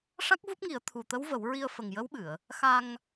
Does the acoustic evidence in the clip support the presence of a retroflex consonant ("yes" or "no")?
yes